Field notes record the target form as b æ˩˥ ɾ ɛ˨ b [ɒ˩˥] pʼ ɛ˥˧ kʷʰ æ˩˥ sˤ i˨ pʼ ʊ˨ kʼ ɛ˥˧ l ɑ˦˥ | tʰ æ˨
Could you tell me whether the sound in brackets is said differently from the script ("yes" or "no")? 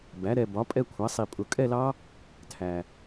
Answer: no